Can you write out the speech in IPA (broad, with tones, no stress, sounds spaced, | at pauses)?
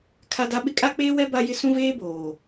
kʰ a˦ d a˦ ɓ ɪ˦ kʼ a˦ k͡p eː˦ w ɛ˦ b a˦ j ɪ˦ s ũ˦ v eː˦ b oː˨